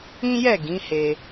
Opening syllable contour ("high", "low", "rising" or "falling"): high